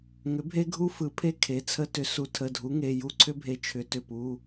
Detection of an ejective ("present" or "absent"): absent